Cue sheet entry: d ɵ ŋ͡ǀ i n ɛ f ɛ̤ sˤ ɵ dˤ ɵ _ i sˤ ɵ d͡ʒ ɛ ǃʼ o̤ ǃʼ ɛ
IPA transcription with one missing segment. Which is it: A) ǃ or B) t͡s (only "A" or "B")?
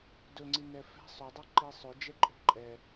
A